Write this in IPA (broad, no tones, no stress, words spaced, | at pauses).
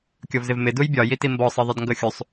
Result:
kʲɔvzɪvmɪ dujbʲɒ jitimbɔ sˤʌðˤɪdŋɡʌxʲusˤ